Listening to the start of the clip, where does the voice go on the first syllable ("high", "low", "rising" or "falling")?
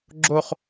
falling